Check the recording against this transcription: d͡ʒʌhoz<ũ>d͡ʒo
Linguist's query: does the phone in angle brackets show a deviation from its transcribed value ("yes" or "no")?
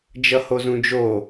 no